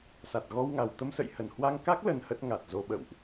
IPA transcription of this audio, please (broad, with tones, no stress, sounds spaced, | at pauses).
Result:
s a˨˩ t̚ ɣ ɔ˧ w ŋ a˨˩ w t̪ ə˧ m s ə̰˧˨ j h ə˨˩ n h w a˧ ŋ k a˦˥ k̚ l ə˧ n h ə˦˥ t̚ ŋ a˨˩ t̚ z o˧ ɓ ə̰˧˨ w ʔ